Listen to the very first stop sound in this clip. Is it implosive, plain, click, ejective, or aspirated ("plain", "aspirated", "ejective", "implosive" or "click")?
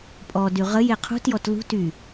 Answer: ejective